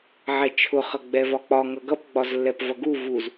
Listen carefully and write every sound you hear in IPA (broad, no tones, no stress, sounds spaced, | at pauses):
ʕ ɛ t͡ʃʰ ʊ χ ʌ ɡ͡b ɛ v ɒ k͡p ɒ ŋ ʌ ɡ ʌ p ɡ͡b ɒ z lː ɛ p v ʌ ɡ u v u z